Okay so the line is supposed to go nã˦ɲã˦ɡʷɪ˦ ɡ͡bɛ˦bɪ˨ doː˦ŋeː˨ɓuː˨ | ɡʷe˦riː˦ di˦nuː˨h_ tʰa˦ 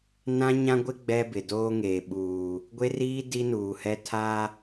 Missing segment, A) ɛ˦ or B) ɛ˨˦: A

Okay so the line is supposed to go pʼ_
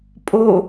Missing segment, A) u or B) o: B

